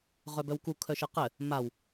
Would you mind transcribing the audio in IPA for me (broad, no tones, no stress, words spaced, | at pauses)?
ʁœbœwku kʰœʃəqɘ | maw